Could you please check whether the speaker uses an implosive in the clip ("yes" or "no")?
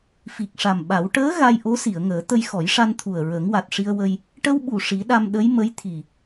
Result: yes